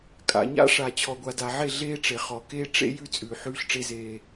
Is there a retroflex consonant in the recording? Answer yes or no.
yes